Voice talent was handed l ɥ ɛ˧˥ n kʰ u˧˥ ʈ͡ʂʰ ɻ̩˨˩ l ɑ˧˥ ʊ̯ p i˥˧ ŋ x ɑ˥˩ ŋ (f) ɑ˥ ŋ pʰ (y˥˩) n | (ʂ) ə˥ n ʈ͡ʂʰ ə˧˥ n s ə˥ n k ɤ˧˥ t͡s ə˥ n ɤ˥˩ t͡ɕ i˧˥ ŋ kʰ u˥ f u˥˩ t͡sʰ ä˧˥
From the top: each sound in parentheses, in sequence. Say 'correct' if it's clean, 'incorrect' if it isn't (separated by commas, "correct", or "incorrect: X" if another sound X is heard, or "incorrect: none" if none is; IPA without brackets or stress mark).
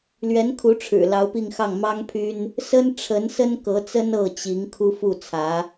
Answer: incorrect: m, incorrect: y˥, incorrect: s